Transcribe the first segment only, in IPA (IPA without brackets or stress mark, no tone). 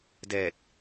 d